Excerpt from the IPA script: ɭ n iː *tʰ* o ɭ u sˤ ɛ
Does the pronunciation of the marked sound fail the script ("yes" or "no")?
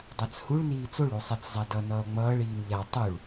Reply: yes